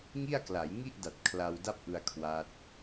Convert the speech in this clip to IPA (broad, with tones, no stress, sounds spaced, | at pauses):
ŋ i˥˩ a̯ k l a˩˦ j ŋ i˥˩ ʔ d a˨˩ t̚ kʰ l a˧ w d a˥˩ p̚ ʔ ɯ˧ a̯ kʰ w a˦˥ t̚